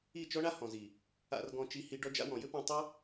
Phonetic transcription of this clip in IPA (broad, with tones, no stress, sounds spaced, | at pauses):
i˦˨ t͡ʃ ɔ˦ ɳ a˦ h ɔ̃˨ z i˨ | a̰˧ r ɡ ɔ̃˧ t͡ʃ i˧ h i˧ ɖ ɔ˧ d͡ʒ a̰˧ w ɔ̃˨ j ɘ˦ p ɔ̃˧ tˤ o˦